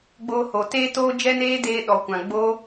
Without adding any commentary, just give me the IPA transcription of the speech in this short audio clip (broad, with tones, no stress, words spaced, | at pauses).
ɡ͡boː˧ho˨teː˦ toː˦d͡ʒɛ˦neː˦deː˧ ɗɔ˨kʷã˨ ɡ͡boː˦